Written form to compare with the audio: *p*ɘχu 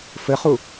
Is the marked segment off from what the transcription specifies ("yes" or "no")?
yes